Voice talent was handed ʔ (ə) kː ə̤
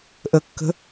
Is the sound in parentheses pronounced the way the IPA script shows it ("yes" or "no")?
yes